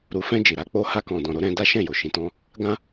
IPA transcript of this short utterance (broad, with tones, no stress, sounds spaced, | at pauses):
ɾ u˨ f ɛ̃˧ d͡ʒ i˨ ɾ a˨˦ k͡p o˦ h a˧ k ɔ̃˨ d ɔ̃˨ ɾ o˧ ɾ ɛ̃˧ d a˦ ʃ ɛ̃˦˨ j o˨ ʃ ĩ˨˦ t ɔ̃˦ | ɡ ã˦